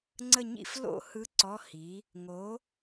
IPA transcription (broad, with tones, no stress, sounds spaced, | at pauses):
ŋ͡ǀ ə˥˧ ɲ ḭ˥˧ f l o̰˥˧ h ɯ˧˥ ǀ ɔ˧˥˧ h i˩˥ | ŋ o˩˥